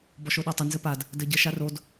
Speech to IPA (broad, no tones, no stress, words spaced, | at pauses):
bɔʃoɗɔtˤə nzɘpad | dɘɟə ʃarod